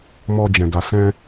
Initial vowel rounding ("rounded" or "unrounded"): rounded